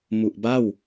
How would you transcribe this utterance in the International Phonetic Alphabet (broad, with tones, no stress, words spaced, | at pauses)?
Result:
mu˨˩ʔba˥˩w